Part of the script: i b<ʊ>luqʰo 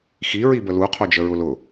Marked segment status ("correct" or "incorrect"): incorrect